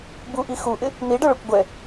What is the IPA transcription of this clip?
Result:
buʔi xuʔɪ | n̪iɖʌɭʌkʷ ɡʷɛ

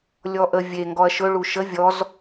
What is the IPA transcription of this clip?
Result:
lʲɔʔə vʲe ŋɡɔɐ̯ʃɵ ɭuʃə vʲɔz

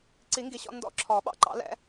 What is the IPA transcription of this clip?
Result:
ǀi˨˩˦ŋɡi˨ɕɔ̰˦˨ ndɔ̰˦˨ǁʰɔ˨˩˦ɓɑ̰˦˨ ǃɑ̰˨˩˦lɛ̰˨˩˦

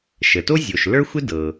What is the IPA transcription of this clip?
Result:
ʃə˩to˥ zʲo˩ʃ lə˞˥xʷɪ˥dɤ˩

